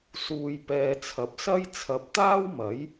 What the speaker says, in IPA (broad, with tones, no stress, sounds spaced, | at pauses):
s uː˨ j p ɛː˨˧ t͡sʰ ɐ˨ p̚ s ɐ˥ j t͡sʰ ɐ˨˥ p̚ t̪ aː˥ w m ɐ˨˥ j